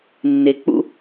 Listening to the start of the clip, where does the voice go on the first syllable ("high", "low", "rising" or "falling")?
low